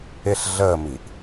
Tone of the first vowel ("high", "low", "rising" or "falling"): falling